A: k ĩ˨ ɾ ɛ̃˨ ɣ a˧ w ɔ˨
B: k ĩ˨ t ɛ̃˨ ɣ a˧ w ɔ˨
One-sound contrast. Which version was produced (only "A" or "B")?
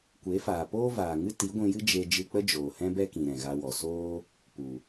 A